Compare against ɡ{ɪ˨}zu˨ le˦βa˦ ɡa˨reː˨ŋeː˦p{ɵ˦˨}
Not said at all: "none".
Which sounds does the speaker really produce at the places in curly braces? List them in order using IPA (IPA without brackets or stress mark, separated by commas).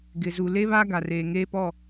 ɪ˨, ɔ˦˨